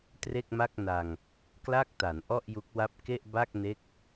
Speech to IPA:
tre˥˩k̚ma˥˩k̚ na˧ŋ | kla˥˩k̚ta˩˦nʔɔ˥˩ʔ ju˦˥k̚wa˥˩p̚ ke˥˩ʔba˥˩k̚ne˦˥k̚

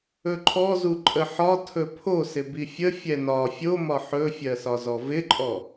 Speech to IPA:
ɵǃʰɔzu ǃʼəħɒ tʰɵpʰo sɪbifʲə fʲɛnɒ fʲomɒ ħɵfʲɜsɒzɔ vɪǃʼɔ

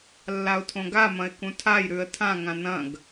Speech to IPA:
lːaʊ̯tʰõɡamɐ̃ɪ̯ kũtʰajɾʉə̯ tʰãŋã nɐ̃ɡ

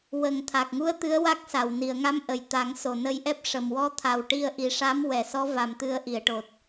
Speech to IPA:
wə˨˩ŋt̪ʰa˨˩k̚ŋu˧˥ə̯ t̪ɨ˧˥ə̯wa˦˥k̚sa˨˩w ni˨˩˨ə̯ŋa˧˥mʔə˨˩˨j t̪a˨˩˦ŋ so˨˩nə˧jʔɛ˦˥p̚ ʂə˨˩mwɔ˧˥t̪ʰa˨˩w ʈi˧ə̯ʔi˨˩ʂa˧˥m wɛ˨˩˨sɔ˧˥ va˨˩mt̪ɨ˨˩˦ə̯ʔi˨˩˨ə̯ʈo˨˩t̚

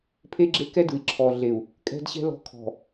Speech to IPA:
pʰe˦ɡ͡ǁe˦kɛ˦ dɯ˨i̯ǁʰɔ˨ɮe˨u̯ | kʼɛ̤˦dɕɛ̤˦ lɔ̤˦kʰɔ̤˨

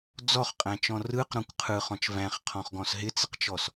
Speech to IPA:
d͡zɔχqʼæ̃t͡ʃɔ̃ rɯqɾɔ̃kʷ qʰɯχɔ̃t͡ʃ væ̃χqʰɔ̃χɡɔ̃s ɦɪt͡sɪqt͡ʃɔs

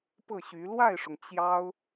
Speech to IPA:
pɤ˥˩ɕy˧˥ lwa˥˩ɪ̯ʂʊ˩ŋ t͡ɕjɑ˥ʊ̯

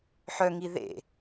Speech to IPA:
ħœŋi ðḛ

